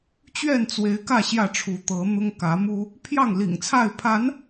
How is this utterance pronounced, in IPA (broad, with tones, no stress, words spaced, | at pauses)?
t͡ɕɥɛ˥˨nt͡swe˨˦ɪ̯kä˥˨ ɕjä˥˨ʈ͡ʂʰu˨˦t̪ɤ˨˦n̪ʊ˦ŋ kä˨˦mu˦ | pʰjɑ˥˨ŋlḭ˨˩ŋt͡sʰa˥˨ɪ̯ pʰa˨˦n